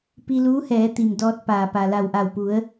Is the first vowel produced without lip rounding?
yes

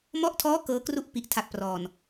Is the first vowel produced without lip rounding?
no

